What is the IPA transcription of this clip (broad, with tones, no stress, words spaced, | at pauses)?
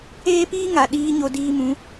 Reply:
eː˦piː˦ŋa˨ ɗiː˦ɲo˧ diː˧mũ˨˦